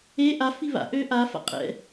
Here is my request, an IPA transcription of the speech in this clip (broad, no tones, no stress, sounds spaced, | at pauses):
e ʔ a f i β a̰ ʔ ø ʔ a f a̰ qʼ ɛ̰